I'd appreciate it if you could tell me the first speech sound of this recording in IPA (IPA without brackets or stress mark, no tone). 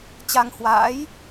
t͡ɕ